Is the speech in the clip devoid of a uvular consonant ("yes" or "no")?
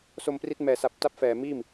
yes